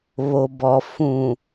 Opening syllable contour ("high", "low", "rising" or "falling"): low